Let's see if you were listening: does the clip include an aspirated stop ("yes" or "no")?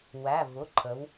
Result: yes